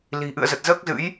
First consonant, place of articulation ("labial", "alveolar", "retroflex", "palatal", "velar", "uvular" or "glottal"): alveolar